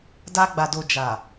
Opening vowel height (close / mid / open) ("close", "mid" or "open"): open